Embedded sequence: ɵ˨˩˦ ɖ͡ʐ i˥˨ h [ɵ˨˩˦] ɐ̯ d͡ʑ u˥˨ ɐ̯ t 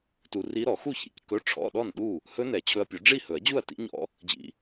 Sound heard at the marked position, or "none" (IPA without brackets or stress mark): ɵ˨˩˦